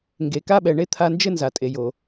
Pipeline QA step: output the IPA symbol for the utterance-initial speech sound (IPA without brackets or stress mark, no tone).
ŋ